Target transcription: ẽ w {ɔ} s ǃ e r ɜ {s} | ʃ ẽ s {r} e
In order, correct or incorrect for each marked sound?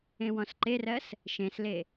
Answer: incorrect: ɔ̃, correct, incorrect: l

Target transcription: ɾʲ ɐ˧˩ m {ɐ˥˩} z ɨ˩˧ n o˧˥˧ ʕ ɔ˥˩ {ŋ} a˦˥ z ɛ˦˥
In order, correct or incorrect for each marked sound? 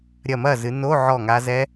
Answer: correct, correct

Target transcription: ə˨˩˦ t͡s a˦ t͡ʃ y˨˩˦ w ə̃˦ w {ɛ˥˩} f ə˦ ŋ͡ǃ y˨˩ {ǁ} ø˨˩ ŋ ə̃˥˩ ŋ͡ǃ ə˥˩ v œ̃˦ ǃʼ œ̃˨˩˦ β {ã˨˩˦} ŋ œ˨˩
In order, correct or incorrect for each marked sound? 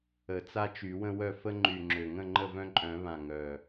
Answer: incorrect: œ˥˩, incorrect: ŋ͡ǁ, incorrect: ã˨˩

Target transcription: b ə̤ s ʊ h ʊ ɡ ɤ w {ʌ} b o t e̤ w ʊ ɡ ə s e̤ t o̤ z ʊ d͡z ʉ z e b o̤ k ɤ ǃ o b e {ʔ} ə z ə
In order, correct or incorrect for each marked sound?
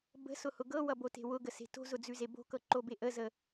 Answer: correct, correct

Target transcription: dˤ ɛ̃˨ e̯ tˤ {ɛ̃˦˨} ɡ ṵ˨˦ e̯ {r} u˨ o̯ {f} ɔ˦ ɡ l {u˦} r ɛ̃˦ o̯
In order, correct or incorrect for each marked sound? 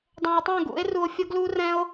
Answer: correct, correct, incorrect: fʲ, correct

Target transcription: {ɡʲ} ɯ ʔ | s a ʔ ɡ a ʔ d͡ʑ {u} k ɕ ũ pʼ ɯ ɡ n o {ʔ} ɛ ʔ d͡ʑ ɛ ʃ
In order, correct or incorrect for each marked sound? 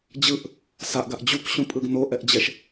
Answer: incorrect: d͡ʑ, correct, correct

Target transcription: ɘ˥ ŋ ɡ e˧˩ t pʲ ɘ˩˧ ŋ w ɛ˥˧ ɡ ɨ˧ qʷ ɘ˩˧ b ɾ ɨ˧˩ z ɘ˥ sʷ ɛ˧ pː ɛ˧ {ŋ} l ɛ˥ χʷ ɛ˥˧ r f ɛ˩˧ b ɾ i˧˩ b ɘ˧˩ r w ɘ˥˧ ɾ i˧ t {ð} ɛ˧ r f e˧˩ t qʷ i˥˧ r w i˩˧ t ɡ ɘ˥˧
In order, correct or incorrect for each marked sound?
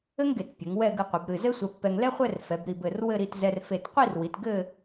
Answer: correct, incorrect: z

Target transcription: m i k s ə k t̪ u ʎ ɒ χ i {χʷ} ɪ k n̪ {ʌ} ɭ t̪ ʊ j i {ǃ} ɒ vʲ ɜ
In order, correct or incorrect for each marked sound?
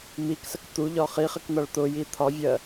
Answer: incorrect: χ, correct, incorrect: t̪ʰ

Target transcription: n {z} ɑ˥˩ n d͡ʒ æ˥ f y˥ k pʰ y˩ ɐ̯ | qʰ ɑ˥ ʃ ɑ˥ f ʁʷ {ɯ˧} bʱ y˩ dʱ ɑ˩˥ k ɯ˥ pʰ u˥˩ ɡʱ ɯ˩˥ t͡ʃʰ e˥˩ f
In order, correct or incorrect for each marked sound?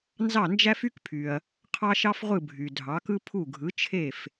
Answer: correct, incorrect: ɯ˥˩

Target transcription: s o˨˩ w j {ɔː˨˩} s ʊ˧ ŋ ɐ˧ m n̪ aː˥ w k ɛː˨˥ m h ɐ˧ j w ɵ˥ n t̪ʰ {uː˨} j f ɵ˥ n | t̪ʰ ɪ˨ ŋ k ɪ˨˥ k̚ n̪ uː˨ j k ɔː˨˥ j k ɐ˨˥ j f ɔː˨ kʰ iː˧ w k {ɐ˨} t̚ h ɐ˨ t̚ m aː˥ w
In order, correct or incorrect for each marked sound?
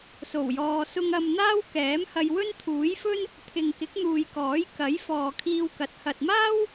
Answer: incorrect: ɔː˧, incorrect: uː˨˥, incorrect: ɐ˨˥

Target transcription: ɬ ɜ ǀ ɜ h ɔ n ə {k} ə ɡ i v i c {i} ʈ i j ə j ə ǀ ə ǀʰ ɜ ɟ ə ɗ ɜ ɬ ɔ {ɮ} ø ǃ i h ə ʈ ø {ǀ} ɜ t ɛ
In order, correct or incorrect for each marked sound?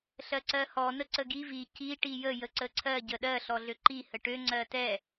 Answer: incorrect: ǀ, correct, correct, incorrect: ŋ͡ǀ

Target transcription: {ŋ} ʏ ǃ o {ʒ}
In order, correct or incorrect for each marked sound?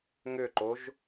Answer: correct, correct

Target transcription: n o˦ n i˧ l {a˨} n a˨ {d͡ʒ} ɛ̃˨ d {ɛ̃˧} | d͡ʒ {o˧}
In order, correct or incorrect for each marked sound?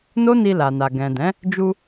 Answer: correct, incorrect: ɡ, incorrect: ɛ̃˨˦, incorrect: u˧

